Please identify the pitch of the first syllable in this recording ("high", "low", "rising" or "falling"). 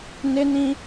high